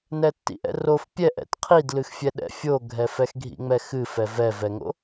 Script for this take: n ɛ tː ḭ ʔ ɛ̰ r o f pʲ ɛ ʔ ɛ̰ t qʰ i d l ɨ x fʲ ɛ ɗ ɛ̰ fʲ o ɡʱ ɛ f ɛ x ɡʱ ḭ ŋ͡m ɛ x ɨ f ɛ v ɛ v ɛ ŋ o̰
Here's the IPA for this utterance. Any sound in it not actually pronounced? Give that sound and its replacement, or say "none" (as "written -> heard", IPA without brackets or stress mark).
none